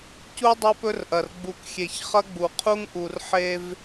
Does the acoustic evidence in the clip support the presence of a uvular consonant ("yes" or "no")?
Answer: yes